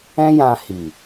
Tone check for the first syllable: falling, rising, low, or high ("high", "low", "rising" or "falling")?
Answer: high